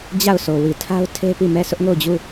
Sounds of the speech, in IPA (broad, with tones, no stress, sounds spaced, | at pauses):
d͡ʑ a˦˨ ʊ̯ sʰ o˨ w i˨ tʰ a˦ ʊ̯ tʰ e˦ p i˦˨ m ɛ˦˨ s ʊ˦ ʔ ŋ o˦˨ ʊ̯ d͡ʑ u˦˨